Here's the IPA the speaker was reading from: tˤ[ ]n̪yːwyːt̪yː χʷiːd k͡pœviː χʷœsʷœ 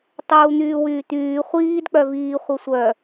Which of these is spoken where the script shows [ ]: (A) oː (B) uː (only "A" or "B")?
B